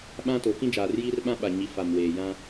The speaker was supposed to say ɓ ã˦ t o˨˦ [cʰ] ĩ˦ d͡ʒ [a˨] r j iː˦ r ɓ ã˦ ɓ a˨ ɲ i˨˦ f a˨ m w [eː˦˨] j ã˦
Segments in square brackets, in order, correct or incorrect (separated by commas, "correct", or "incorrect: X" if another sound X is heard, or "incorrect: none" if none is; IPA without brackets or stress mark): incorrect: k, incorrect: aː˨, incorrect: eː˨